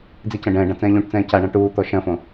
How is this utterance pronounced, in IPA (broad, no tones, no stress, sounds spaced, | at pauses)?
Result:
d͡z i c ɐ̃ ɖ ɛ̃ː ɖ ã t͡s ɛ̃ː ʎ ũ ʈ t͡s ɛ̃ː c a ɳ ã ʈ uː t̪ ɔ ʃ ɐ̃ f õ